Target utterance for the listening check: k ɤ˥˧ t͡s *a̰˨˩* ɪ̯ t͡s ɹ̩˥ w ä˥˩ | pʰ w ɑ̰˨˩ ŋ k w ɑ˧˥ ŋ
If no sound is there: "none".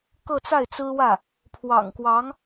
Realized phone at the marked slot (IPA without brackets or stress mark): a˥˩